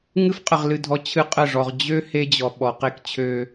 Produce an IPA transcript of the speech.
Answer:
ŋ ɨ˦ f qʼ ə˨ ʁ l ɨ˨ dʱ ɔ˨˦ t͡ɕʰ ɨ˦ qʼ ə˦˨ ʐ ɔ˨ ʁ d͡ʑ ø˦ h e˦ d͡ʑ ɔ˨ ɓ ɔ˨ q e˦ k t͡ɕʰ ø˦

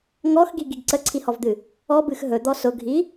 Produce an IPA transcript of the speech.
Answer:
ŋ ɔ x ɡ i ɡ i ɡ ǀ ə ǀʰ i h ɔ v d̪ ɨ | ɔ b ɨ x ɦ ɵ d̪ ɔ s ʊ ɡʱ i

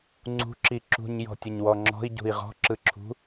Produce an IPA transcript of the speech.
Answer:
ŋ͡ǀ ṳ ǁ i ǁ ṳ ɲ j ɔ̤ tʲ ə ɲ w ɔ ŋ͡ǁ ɔ̤ i̯ ɟ ṳ i̯ ʁ ɔ̤ ǁ ɯ ǁʰ ṳ

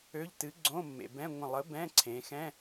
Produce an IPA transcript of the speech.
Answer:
ø˧˥˧ ʎ t ɨ˨˥ ɡ͡ǀ õ˧˥˧ mː ḛ˩ b ɛ̃˧˥˧ ŋʷ ə̃˧˩ lˠ ə˨˥ b ɛ̃˧˥˧ ǀʰ ẽ˩˧ x ɛ̃˧˥˧

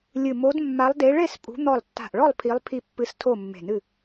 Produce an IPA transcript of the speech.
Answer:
lʲ ɨ˧˩ m o˨˦ d mː a˨˦ lˠ d e˨˦ ɭ e˥˨ s pʼ ṳ˨˦ n̪ ɔ˧˩ lˠ tː a̤˧˩ ʔ ɭ ɔ˥˨ lˠ pʰ i˨˦ lˠ pʰ i˧˩ pː ɨ˨˦ s tʰ o˥˨ mː e̤˧˩ n ɨ˥˨

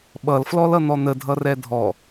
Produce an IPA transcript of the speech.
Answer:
ɓ ʌ l f l ɔ l ʌ n̪ ɔ n̪ ə dʱ ʌ r ɛ dʱ ɔ

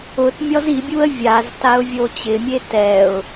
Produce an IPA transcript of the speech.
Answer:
ʊ t mʲ ɔ z i bʲ u ə̯ vʲ a z t a ʊ̯ vʲ o t͡ɕ ɪ mʲ e t ɛ ʊ̯

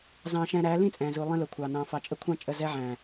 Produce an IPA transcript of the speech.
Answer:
z ɑ̃˧ ʃ ɛ̃˧ ɾ æ˨˦ l ĩ˦ t͡sʼ ɛ̃˨ z u˨ lˠ ĩ˧ l ʊ˨ kʷʰ ɑ˨ n ɑ̃˨ f ɑ˨ t͡ʃʼ ə˦ kʷʰ ɑ̃˦ t͡ʃʼ ə˦˨ z ɛ˧ ʕ æ̃˨

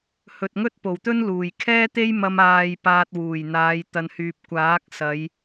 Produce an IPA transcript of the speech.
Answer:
h ɵ˨ t̚ ŋ ɵ˥ t̚ p o˨˩ w t̪ ɵ˥ n l uː˨˩ j kʰ ɛː˥ t̪ e˥ j m ɐ˧ m aː˨ j p aː˧ t̚ w uː˨˩ j n̪ aː˨˧ j t̪ ɐ˨ n h yː˨ p̚ kʷ aː˨˥ k̚ s ɐ˨˧ j

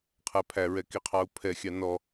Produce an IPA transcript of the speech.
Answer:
qʰ æ pʰ æ ɹ ɛ k i qʰ ɑ u̯ pʰ ɛ xʲ ɑ n ɔ

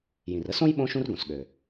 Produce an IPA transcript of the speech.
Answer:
j ĩ˩ r ə˥ s õ˥ j ɓ õ˥ ʃ ũ˥ r ɡ õ˩ s ɠ ø˩

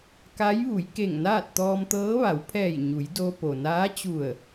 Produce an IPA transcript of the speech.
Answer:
k a˧˥ j ʋ u˩˧ j k e˧˩ ŋ n aː˥˨ t̚ t̪ ɔː˧ m t̪ ɤː˧˥ ʋ a˩˧ w pʰ ɛː˧˩ j ɲ u˩˧ j d o˧ p o˩ n aː˧˥ t͡ɕ u˧˩ ə̯

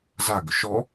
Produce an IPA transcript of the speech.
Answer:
z a ɡ ʊ ʃ ɔ

